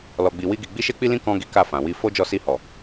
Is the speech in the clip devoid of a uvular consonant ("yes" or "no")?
yes